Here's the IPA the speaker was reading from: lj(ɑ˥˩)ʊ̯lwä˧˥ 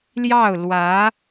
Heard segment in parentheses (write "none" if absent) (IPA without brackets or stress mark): ɑ˥˩